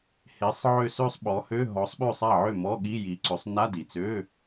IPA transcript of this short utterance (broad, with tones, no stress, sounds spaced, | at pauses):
h e˨˥ sˤ ʕ ø˥˩ s ø˥˧ sˤ ɓ ɔ˨˥ h ø˧˥˧ ɦ ɔ˨˥ sˤ ɓ ø˥˩ sˤ a˥˩ ʕ ø˥˩ m ɔ˧˥˧ ɠ i˧˥˧ j i˨˥ ǀ ø˨˥ sˤ n a˧˥˧ d i˨˩ t͡s ø˧˥˧